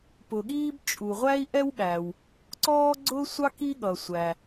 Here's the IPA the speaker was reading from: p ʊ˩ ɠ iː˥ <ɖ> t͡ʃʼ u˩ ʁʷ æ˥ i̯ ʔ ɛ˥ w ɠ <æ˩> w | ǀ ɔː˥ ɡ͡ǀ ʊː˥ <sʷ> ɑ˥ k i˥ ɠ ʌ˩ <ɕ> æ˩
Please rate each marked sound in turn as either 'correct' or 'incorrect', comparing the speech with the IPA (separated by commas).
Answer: incorrect, correct, correct, incorrect